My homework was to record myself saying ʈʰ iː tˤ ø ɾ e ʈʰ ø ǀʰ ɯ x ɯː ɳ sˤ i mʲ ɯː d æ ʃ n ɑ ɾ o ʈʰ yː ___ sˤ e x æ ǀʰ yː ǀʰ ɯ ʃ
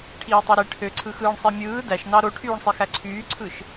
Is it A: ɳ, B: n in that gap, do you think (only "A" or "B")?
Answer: A